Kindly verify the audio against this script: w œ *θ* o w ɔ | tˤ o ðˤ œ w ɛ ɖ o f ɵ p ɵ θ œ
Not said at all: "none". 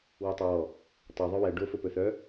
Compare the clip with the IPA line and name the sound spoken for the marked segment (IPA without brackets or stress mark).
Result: tˤ